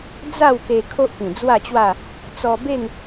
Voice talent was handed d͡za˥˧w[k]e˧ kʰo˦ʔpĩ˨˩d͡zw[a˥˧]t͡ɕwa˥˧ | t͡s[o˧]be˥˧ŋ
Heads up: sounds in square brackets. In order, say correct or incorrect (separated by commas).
correct, correct, incorrect